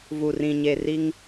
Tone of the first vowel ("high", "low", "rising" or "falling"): low